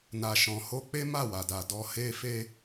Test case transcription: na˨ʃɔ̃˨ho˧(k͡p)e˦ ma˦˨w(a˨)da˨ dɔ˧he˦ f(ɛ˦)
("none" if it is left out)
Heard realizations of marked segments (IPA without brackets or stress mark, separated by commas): k͡p, a˨, e˦